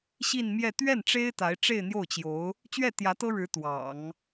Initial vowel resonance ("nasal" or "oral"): oral